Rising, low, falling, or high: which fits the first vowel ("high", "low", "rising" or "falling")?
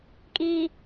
low